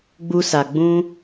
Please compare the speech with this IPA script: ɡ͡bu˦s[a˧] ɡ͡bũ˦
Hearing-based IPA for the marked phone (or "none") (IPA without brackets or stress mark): a˧